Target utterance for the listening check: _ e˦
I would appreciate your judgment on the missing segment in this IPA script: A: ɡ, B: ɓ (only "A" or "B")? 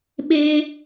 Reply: B